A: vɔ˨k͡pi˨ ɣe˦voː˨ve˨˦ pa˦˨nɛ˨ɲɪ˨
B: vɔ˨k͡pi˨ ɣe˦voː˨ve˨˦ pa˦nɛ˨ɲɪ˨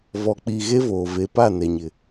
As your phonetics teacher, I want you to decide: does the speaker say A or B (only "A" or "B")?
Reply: A